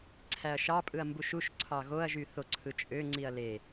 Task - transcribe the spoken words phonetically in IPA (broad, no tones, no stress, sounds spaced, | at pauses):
ǀʰ æ ɐ̯ ʃ ɑ pʼ ɯ ɐ̯ m b u ʃ u ʃ ǀʰ ɑ ɣ o ɐ̯ ʒ y θ o ǀʰ ɯ t͡ʃʼ ø ŋ͡ǀ i ɐ̯ l e